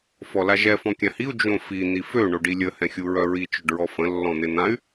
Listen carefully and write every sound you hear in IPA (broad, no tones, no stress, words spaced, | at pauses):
fɔlaʒɛ fɔ̃kʲãhiu̯ d͡ʒõfi n̪ifø ɳoɖilʲə hɛ̃xʲuɹœɹi t͡ʃœɖɹɔfə̃ lːɔ̃n̪en̪ãy̯